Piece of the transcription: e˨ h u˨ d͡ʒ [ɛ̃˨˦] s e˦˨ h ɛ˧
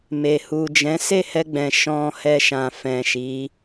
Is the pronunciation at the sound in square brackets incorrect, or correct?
correct